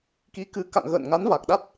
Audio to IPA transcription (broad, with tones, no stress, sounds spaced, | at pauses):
k i˨˦ k ɨ˨˦ k a̰˧˨ ŋ ɣ ə̰ː˧˨ n ŋ a˨˦ n v a˨˩ k̚ ɗ a˦˥ t̚